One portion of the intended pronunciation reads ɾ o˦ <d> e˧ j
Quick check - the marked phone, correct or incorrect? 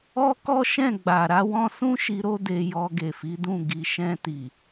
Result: correct